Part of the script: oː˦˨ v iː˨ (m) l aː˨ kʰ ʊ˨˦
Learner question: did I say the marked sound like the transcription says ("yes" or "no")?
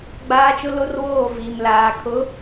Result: yes